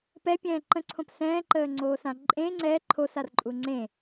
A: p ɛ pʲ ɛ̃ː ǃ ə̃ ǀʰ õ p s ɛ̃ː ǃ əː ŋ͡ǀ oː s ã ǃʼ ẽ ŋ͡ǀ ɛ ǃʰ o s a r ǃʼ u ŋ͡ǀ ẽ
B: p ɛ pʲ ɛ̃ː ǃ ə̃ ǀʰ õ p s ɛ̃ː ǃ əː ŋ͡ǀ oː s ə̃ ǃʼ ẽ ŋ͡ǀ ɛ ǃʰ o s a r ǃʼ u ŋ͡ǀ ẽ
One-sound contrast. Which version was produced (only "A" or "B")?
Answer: A